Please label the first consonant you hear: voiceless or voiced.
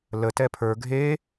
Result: voiced